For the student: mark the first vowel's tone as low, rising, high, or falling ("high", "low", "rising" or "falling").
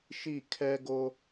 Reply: falling